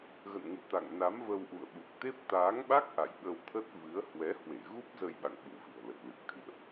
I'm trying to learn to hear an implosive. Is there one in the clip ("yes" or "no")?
yes